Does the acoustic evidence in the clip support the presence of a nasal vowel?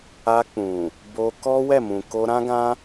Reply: yes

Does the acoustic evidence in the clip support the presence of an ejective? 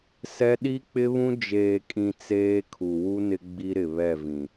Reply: yes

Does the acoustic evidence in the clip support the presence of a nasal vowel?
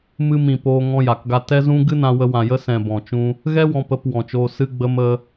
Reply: yes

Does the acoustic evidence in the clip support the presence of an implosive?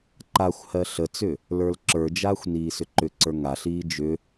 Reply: no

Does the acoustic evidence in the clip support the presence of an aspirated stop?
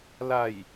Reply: no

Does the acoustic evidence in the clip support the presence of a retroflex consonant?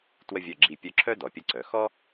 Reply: no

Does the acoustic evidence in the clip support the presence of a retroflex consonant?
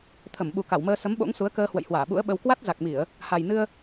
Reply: no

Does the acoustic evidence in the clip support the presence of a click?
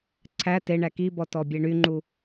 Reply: yes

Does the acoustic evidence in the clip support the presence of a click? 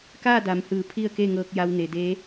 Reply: no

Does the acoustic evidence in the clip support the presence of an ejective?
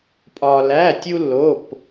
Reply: yes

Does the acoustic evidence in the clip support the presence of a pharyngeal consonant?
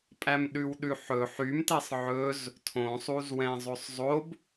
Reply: yes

